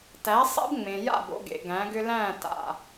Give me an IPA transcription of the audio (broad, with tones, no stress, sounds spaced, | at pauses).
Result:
t æ˨˦ sˤ ɛ̰˦ b ŋ͡m ẽ˨ j a̰˦˨ b o̰˧ ɡ ḛ˨ ɡ æ̃˨˦ ɡ ʏ˦ l æ̃˦˨ t a̰˨